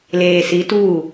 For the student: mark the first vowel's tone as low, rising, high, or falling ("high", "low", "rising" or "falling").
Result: low